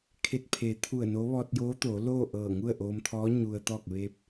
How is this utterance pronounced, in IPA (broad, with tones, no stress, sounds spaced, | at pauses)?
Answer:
kʰ e˧ t̚ pʰ e˩˧ t̪ʰ u˧˩ ə̯ n o˧˥ ʋ ɔː˧ t̚ j oː˧˥ t̪ oː˩˧ l oː˥˨ ʔ ɤː˧˩ ŋ u˥˨ ə̯ ʔ oː˧ m t̪ʰ ɔː˧˥ ɲ u˧ ə̯ t̪ ɔː˥˨ k̚ ʋ e˧ p̚